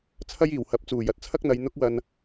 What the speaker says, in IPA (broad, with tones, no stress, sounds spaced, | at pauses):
t͡sʰ ɐ˥ j iː˨˩ w h ɐ˨˥ p̚ t͡s uː˨˩ j ɐ˨ t̚ t͡sʰ ɐ˥ k̚ n̪ ɐ˨˧ j n̪ ʊ˥ k̚ w ɐ˧ n